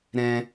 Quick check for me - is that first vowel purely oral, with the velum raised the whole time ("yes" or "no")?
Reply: no